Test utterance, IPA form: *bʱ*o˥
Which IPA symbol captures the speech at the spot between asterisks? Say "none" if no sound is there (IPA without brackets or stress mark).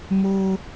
m